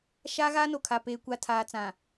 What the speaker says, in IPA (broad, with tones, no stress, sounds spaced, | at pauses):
ʃ aː˦ ɣ aː˦ n o˨ kʰ a˨ p eː˨ kʷ a˨ tʰ aː˨ t͡s ã˨